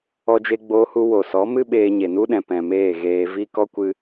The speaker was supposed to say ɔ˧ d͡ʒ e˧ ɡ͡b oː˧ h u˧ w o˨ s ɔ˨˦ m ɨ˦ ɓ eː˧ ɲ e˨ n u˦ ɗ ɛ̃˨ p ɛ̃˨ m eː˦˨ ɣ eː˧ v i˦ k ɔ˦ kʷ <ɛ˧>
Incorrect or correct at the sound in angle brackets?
incorrect: ɨ˧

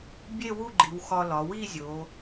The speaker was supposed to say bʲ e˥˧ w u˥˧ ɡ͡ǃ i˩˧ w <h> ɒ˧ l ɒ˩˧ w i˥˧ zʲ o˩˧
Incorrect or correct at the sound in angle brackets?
incorrect: x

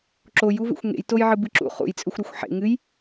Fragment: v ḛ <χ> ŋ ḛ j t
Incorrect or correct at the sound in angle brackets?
incorrect: xʷ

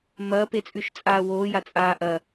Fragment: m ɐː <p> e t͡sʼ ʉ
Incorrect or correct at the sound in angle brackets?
correct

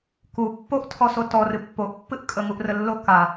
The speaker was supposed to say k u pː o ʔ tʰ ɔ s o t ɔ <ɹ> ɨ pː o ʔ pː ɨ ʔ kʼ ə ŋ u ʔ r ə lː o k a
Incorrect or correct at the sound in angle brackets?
incorrect: r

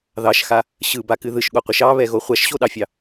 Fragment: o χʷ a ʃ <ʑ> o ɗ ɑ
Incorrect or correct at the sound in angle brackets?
incorrect: ɕ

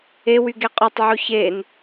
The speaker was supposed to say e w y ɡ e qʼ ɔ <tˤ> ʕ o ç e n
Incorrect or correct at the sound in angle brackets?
correct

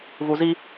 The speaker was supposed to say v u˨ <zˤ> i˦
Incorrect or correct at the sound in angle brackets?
incorrect: z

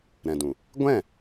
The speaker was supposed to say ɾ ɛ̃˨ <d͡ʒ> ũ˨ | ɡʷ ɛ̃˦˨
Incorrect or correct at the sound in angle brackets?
incorrect: d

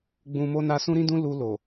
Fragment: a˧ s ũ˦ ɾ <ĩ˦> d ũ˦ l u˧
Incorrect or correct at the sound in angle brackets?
correct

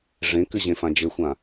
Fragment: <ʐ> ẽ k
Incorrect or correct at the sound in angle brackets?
correct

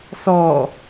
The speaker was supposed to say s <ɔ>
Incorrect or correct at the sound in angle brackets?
correct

